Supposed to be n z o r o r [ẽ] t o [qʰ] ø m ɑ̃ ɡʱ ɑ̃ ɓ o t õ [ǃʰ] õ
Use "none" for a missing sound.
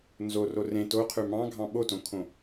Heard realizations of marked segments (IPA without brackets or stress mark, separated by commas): ẽ, qʰ, kʰ